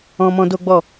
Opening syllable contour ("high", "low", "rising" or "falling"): high